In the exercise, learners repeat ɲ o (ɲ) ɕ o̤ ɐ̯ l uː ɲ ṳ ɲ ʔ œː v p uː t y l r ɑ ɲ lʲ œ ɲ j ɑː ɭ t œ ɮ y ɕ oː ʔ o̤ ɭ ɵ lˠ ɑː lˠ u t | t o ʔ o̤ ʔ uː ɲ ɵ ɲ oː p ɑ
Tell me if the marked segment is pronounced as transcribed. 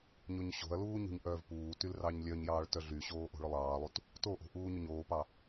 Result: yes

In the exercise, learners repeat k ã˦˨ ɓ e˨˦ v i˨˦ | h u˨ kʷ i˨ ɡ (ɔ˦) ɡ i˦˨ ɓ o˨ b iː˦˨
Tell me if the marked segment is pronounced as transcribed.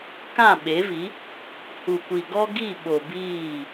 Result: yes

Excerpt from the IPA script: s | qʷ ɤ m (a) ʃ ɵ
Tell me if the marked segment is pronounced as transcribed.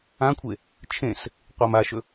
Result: yes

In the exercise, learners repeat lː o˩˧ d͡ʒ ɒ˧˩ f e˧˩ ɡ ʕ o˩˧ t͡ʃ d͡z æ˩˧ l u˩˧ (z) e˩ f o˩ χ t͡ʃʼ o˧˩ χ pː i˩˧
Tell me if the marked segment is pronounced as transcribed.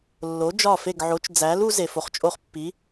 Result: yes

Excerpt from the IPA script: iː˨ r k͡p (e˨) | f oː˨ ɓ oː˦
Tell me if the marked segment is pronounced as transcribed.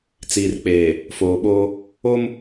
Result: no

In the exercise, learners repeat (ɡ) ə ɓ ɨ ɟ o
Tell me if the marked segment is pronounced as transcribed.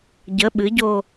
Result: no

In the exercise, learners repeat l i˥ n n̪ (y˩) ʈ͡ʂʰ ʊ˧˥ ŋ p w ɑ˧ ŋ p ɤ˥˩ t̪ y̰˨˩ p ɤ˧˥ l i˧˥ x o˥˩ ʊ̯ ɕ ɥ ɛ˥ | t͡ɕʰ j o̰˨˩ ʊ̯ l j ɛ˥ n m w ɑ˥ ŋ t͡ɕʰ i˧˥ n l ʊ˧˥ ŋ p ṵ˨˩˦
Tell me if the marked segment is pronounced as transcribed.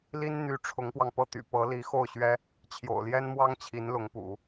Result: no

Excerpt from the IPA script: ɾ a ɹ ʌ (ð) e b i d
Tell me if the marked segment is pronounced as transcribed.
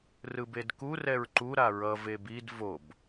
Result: no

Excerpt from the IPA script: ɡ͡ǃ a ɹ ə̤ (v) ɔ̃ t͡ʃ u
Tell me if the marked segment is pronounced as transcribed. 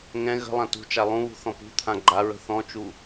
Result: no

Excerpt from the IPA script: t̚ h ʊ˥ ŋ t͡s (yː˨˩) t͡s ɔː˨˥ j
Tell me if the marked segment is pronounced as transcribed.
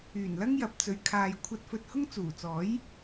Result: no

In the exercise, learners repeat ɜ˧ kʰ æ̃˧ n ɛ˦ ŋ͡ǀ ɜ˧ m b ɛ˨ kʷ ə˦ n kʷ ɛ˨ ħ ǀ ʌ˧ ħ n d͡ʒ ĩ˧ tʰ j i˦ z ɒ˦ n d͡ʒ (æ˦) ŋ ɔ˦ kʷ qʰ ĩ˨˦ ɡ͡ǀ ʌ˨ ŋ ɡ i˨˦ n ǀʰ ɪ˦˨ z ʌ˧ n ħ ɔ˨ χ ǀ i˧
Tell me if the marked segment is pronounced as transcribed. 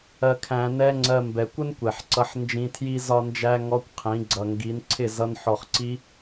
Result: yes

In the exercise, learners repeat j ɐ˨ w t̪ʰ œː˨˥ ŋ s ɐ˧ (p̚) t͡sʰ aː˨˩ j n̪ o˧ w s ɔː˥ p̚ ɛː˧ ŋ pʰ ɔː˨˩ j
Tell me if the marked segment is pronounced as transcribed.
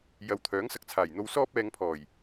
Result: no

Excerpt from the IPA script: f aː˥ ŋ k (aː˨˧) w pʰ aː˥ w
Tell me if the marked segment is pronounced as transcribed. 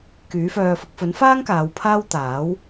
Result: yes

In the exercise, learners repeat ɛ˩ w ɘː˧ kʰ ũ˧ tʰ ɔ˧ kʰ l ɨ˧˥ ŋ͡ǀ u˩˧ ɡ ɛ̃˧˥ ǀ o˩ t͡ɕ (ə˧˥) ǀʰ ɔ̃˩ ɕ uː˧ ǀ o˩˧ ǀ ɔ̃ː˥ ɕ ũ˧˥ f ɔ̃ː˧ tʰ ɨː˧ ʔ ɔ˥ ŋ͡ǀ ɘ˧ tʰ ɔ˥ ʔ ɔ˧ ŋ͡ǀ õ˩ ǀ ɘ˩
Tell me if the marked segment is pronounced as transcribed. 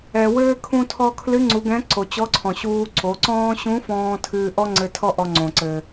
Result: no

